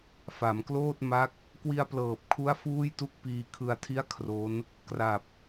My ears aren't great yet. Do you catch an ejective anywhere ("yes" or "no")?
no